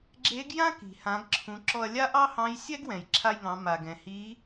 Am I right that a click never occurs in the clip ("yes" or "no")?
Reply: no